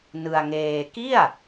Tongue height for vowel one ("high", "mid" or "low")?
high